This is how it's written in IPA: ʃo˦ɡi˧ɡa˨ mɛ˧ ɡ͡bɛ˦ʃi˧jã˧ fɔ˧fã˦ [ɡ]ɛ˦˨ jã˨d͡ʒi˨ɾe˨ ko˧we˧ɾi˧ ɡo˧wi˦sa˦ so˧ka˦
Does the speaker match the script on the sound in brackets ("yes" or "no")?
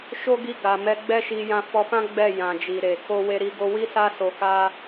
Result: no